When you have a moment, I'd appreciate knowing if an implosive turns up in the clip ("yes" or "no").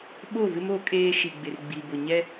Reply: yes